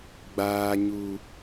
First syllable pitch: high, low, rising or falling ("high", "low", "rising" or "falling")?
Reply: low